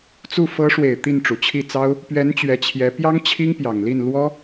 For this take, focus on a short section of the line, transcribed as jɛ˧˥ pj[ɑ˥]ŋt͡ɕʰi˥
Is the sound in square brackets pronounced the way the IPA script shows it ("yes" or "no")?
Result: yes